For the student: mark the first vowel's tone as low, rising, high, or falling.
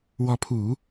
rising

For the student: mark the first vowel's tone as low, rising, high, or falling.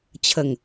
low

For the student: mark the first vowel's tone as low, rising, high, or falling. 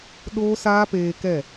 high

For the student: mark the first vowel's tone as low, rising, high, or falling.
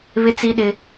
high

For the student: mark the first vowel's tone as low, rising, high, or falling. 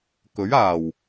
rising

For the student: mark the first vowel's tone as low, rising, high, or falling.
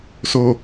low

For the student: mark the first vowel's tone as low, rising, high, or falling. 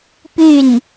falling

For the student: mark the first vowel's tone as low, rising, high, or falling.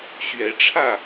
rising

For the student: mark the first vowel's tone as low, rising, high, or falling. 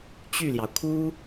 falling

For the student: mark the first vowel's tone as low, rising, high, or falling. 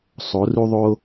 rising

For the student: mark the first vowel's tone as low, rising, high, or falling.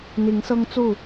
rising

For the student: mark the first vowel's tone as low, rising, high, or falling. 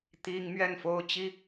high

